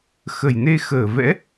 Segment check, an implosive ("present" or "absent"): absent